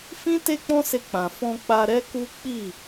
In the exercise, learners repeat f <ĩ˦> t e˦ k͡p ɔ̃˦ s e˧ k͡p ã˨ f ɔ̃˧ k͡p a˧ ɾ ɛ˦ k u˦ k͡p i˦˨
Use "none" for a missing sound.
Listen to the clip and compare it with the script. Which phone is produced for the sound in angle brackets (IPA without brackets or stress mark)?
ĩ˦